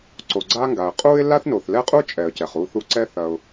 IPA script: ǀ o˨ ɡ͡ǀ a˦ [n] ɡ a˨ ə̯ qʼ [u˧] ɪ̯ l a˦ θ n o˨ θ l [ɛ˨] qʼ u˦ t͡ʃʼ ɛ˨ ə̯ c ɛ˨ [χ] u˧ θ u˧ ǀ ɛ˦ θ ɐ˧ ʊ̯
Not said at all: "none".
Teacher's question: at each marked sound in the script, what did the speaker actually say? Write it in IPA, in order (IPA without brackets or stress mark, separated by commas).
ŋ, u˦, ɛ˦, χ